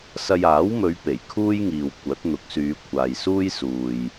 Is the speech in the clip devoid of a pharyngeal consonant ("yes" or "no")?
yes